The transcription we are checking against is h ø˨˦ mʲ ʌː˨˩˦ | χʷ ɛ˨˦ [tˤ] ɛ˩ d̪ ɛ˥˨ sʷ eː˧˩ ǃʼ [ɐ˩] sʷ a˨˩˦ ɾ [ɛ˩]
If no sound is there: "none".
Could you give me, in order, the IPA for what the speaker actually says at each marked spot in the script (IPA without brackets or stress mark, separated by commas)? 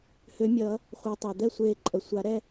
tˤ, ə˩, ɛ˥˨